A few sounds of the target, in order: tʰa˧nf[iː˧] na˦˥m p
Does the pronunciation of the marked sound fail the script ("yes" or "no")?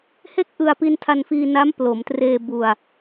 no